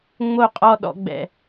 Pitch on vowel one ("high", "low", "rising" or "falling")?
falling